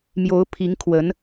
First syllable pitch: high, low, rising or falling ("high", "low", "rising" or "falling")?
rising